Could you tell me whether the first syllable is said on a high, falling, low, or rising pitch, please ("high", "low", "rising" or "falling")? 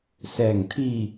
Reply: low